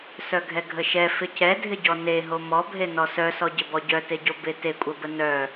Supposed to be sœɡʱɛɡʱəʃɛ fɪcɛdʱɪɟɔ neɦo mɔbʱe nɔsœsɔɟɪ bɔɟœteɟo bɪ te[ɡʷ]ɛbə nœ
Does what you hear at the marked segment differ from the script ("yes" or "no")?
yes